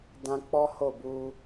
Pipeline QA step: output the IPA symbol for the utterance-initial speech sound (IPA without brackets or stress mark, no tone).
d